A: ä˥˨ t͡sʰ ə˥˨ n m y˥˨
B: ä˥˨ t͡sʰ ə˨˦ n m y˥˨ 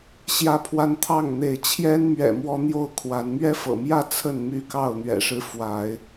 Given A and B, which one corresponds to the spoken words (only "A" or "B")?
A